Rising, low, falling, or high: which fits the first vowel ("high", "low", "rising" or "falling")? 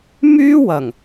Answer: high